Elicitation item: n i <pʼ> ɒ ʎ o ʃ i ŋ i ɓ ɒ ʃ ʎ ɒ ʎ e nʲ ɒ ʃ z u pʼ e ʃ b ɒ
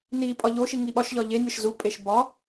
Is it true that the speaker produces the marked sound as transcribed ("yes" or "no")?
yes